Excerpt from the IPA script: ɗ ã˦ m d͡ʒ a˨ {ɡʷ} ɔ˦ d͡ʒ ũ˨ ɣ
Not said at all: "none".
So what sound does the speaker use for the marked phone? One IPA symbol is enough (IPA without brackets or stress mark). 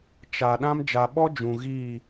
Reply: ɓ